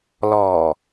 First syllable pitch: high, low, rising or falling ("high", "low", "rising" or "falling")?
low